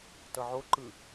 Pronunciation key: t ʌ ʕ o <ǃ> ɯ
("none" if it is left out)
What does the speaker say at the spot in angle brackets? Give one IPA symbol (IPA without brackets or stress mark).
ǃ